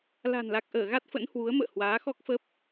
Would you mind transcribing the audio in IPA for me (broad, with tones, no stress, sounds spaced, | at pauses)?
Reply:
l a̤˨˩ n l a˨˩ k̚ ʔ əː˧˩ ɣ a˦˥ t̚ f ə̰˧˥ n h w u˨˦ ə̯ m ə̰ː˧˨ h w aː˨˦ x ɔ˦˥ k̚ f ə˦˥ p̚